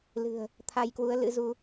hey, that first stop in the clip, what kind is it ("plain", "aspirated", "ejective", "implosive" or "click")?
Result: aspirated